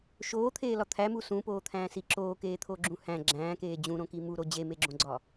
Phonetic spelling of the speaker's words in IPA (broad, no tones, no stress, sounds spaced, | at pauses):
ʃ oː t̪ʰ eː l ɒ t̪ʰ æ m u s ũ p oː t̪ʰ æ̃ː s i ǁ oː k eː t̪ʰ o ɡ͡ǁ ũ h æ̃ ɡ͡ǁ æ̃ː k eː d͡ʑ ũ ɾ õ k i m u ɾ o d͡ʑ e m e ɡ͡ǁ õ ɡ͡ǀ ɒ